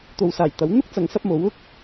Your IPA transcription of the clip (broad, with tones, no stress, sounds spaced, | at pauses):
t̪ o˨ w s aː˨˩ j t̪ ɐ˨˥ w n̪ ʊ˥ k̚ t͡s ɐ˨˥ ŋ s ɐ˧ p̚ m o˨˥ w ʊ˥ k̚